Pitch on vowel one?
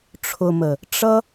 low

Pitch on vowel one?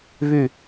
falling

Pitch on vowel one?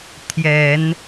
low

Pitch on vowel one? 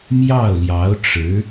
falling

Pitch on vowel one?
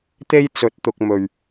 high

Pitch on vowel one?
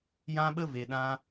high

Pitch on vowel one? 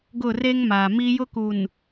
falling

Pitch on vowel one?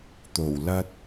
low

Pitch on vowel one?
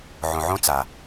low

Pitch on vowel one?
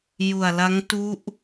low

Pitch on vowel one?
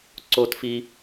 high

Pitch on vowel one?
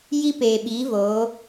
high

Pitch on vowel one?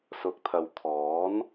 rising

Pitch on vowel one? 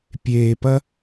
low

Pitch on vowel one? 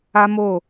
high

